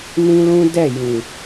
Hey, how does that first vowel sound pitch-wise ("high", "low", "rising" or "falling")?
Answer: high